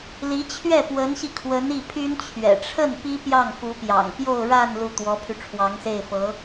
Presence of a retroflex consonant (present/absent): present